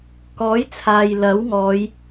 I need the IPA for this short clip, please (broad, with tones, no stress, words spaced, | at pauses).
kɔː˨˥jt͡sʰaː˨j lɐ˨˥wŋɔː˨˧j